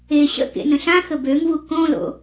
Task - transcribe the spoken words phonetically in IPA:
e ɕə̰ kḛnə̃ɬã xəbøŋvu kõlo̰

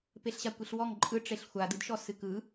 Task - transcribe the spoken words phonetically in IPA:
peɬɕakʷiɬwɔŋ ǃʼɯʈ͡ʂeɬ xʷadɯdʃɔ sɨkɯ

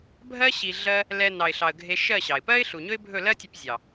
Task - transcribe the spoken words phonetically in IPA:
bʱɜ˦ ɕi˧ɮɜ˦ | lɛ˧ nɑ˨ɪ̯ɬɑ˨ə̯ ɡʱe˧ʃɜ˦˨ɕɑ˨ɪ̯ pɜ˦ɪ̯ɬu˨ɲɵ˦ɪ̯bʱɵ˦˨ lɜ˦tʲo˧p zʲɑ˨

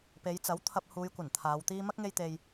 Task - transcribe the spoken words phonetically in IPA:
pe˨˧jt͡sɐ˨˥w t̪ʰɐ˧p̚huː˨˧j kʷɐ˨˩nt̪ʰaː˨˧wt̪iː˥ mɐ˥k̚ŋe˧jt̪e˨j

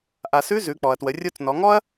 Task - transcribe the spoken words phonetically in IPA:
ʔa˩sʉ˧˥ zʉ˩˧k͡pɔ˩ɐ̯twə˩˧ rʲo˧t͡snɔ˩˧ŋɔ˥ɐ̯

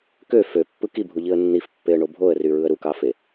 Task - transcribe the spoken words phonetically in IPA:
kø føpːɯ kibʱuʎiə̯ nːifpːeə̯ɳo bʱoə̯ryɹɯə̯ ɾukɑfe

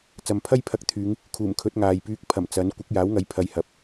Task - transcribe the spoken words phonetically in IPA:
t͡sɐ˨mpʰɐ˥jpʰɐ˧k̚t̪ʰyː˨˧ŋ | kʰuː˨˩mkʰɵ˨˥t̚ ŋaː˨jpyː˧k̚pʰɐ˨˩m t͡sɐ˨˥n kʷɪ˨˥k̚jaː˨˥wŋɐ˨˥j pʰɐ˨˧jhɐ˨p̚

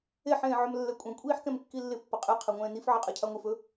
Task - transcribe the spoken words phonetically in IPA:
eħ ẽːʕɵmlːɛkʷʼẽ kʷʼiːħkɛ̃mkːilːɪ pːəqʼe qʰɛŋʷɛ̃ːnif ʕɛqʼɛcʰaŋʷif ɵ

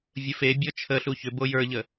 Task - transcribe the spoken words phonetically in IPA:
vʲəfebʲɔ t͡ʃʰəɬu çʏ bojə˞ʎə

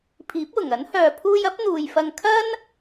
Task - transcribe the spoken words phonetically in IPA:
pʰiː˨˥p̚wʊ˨˩ŋɐ˨˥n hœː˨ pʰuː˧jɐ˨˥p̚ n̪uː˨jfɐ˧ŋ kʰɐ˥n

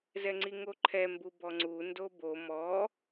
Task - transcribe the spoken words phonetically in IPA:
zɛŋ͡ǀiŋoǃʰɛ mbubɔŋ͡ǀu ndobo mɔ

